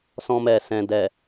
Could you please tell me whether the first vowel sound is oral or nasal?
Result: nasal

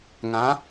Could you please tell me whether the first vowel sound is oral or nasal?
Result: nasal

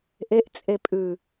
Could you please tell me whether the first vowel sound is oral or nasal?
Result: oral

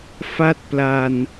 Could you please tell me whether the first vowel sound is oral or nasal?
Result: oral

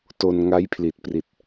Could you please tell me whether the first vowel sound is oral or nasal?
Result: oral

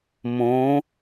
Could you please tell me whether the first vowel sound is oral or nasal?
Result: nasal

